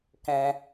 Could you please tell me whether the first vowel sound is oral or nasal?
nasal